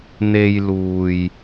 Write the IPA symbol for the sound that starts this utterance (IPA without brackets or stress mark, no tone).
n̪